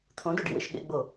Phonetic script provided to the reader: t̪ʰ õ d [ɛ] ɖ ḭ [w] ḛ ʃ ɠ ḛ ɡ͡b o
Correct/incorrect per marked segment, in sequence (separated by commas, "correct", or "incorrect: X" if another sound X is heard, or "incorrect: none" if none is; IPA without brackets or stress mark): incorrect: œ, correct